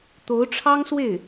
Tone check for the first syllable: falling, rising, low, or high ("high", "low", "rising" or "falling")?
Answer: rising